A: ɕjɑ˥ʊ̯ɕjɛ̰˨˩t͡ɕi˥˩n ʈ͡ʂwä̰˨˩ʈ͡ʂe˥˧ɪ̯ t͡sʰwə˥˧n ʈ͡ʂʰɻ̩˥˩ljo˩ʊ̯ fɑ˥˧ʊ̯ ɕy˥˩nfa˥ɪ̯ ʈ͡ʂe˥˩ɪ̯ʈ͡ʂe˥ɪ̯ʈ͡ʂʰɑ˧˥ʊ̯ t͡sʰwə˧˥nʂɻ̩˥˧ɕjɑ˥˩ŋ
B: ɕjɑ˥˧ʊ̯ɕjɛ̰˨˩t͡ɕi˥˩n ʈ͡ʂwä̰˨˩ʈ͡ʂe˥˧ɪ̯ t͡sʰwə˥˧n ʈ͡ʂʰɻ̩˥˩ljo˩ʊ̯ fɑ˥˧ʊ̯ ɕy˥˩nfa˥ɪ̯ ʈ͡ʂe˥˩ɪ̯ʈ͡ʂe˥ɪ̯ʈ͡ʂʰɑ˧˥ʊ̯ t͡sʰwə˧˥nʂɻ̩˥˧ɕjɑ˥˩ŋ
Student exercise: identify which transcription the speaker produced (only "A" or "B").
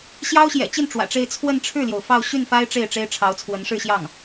A